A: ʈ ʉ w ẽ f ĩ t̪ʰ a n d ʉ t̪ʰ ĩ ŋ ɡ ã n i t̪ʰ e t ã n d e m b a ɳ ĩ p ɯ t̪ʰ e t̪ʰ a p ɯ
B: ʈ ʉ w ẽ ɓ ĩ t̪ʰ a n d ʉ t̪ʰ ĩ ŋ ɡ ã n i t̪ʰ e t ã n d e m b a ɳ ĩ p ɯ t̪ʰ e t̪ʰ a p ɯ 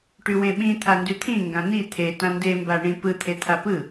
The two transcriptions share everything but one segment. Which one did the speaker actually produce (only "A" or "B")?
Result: B